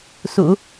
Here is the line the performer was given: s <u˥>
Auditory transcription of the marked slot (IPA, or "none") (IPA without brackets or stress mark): ṵ˨˩˦